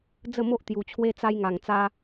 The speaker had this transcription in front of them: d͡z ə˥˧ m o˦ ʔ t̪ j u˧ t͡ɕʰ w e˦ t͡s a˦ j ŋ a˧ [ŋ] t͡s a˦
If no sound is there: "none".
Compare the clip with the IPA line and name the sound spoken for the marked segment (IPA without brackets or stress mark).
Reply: ŋ